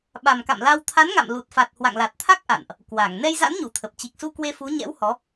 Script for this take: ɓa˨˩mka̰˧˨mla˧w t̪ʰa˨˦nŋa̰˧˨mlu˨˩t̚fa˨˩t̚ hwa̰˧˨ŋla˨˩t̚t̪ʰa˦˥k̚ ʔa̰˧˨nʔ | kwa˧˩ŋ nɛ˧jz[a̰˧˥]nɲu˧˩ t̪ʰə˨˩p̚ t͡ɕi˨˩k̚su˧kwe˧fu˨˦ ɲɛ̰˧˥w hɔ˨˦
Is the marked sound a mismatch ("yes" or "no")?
no